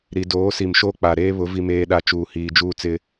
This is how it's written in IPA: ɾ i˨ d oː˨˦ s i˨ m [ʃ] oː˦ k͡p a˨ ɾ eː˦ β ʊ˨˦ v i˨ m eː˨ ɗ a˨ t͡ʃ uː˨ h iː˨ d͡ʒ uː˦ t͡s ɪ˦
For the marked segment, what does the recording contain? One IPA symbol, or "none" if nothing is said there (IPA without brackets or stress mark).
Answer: ʃ